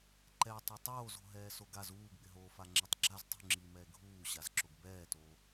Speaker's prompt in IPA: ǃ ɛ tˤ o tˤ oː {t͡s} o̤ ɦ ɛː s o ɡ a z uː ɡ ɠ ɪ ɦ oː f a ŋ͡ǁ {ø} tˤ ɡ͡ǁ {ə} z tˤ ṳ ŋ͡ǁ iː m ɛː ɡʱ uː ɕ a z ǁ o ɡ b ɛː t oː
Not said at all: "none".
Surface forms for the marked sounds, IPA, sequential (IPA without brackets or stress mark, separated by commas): z, ɛ, a